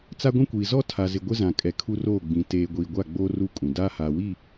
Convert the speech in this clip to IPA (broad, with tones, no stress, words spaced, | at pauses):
t͡sa˦ɡʷĩ˦kʷiː˨ zɔ˦tʰa˨zɪ˨ ɡʷɪ˦zã˨ kʼɛ˨kʰu˦roː˦˨ɡ͡bĩ˨˦ teː˨ ɡʷiː˨ɡʷa˦˨ɡ͡boː˦ ru˦ kʼũ˨ daː˦haː˨wi˦˨